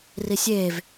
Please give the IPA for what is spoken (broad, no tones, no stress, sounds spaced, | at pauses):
r i sʲ eː v